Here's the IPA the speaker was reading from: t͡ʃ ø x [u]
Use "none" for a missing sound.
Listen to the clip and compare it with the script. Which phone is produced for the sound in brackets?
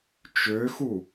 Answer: u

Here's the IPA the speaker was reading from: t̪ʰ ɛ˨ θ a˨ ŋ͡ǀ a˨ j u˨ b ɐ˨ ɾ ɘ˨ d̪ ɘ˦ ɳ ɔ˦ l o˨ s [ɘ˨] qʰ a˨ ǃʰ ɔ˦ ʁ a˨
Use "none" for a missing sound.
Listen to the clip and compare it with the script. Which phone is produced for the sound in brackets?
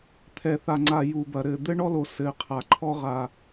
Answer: ɘ˨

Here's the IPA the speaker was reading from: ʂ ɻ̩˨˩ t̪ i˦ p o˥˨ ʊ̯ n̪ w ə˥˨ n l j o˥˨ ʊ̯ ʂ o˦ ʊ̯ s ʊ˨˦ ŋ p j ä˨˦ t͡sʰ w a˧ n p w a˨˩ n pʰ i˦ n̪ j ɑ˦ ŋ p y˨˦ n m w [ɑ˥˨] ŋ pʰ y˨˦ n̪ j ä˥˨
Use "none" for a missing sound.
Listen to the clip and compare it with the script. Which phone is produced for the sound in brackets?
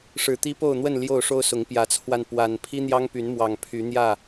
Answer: ɑ˨˩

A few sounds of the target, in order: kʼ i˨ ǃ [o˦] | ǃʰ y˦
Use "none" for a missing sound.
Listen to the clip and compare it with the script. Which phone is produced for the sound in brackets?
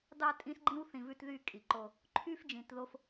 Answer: o˦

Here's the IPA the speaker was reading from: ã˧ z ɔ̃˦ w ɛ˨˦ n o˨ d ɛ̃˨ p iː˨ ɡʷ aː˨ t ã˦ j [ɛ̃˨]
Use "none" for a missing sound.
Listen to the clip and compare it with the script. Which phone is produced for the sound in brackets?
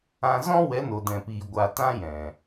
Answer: ɛ̃˨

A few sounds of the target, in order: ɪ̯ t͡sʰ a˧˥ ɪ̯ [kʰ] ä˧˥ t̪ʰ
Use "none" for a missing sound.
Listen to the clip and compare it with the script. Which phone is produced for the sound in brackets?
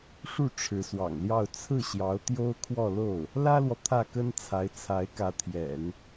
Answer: k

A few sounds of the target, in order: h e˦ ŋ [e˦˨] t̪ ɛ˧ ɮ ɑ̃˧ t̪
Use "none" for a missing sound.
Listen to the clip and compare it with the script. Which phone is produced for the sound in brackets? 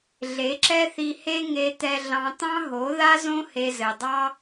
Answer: e˧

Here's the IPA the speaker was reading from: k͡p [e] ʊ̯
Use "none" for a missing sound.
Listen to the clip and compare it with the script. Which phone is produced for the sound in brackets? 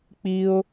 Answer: i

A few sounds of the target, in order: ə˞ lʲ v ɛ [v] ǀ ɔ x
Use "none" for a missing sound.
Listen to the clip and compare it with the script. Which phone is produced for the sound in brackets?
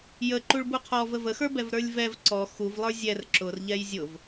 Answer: v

